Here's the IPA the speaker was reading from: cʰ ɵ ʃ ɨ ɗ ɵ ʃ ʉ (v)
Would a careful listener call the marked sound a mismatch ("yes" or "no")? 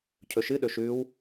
yes